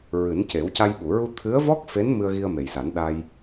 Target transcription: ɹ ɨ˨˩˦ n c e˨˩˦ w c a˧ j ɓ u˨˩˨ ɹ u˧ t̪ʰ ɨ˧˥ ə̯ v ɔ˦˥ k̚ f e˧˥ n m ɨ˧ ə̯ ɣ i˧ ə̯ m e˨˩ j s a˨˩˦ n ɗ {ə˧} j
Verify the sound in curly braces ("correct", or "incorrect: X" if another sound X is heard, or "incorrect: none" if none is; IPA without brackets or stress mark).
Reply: incorrect: a˧